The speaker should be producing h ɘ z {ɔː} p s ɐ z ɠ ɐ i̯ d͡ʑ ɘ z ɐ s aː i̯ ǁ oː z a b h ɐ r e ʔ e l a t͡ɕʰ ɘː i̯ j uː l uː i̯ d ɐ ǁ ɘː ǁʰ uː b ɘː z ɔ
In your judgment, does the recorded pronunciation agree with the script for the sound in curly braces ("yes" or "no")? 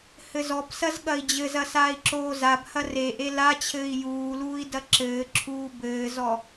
no